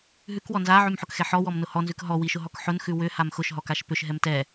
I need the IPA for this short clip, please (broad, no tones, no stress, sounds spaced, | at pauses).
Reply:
ɦ ʉ k w ɔ n z a ʕ ʉ m ħ ʊ k x ɛ ħ ɔ w ɔ m n ʊ h ɔ n z ʉ k ɦ ɔ w i ʃ ʊ ɦ ɔ k ħ ʊ n x ʉ w ʏ h a m x ʊ ʃ ɦ ɔ k a ʃ p ʏ ʃ ɦ ɛ m t ɛ